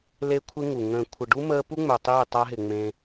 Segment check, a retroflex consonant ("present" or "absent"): present